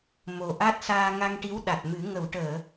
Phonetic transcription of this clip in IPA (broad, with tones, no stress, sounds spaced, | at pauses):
m o˨˩ ʔ a˦˥ t̚ s aː˧ ŋ a˧ ŋ ʈ i˧˥ w ɗ a˨˩ t̚ m ɨ˨˩˦ ŋ ə˨˩˨ w ʈ əː˨˩˨